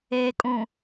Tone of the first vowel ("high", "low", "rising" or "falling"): low